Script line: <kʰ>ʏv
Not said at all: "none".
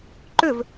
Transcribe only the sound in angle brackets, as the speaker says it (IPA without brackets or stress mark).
ǃ